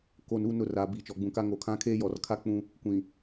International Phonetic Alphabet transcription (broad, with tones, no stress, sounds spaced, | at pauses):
k o˨ n u˦˨ n ʊ˦˨ r aː˨ b iː˨ t͡ʃ ɔ˨ ɡ͡b ũ˨ k a˦ ŋ o˨ kʰ ã˦ kʰ eː˦ j ɔ˨ r kʰ a˦ k͡p ũ˦ | kʷ ĩ˨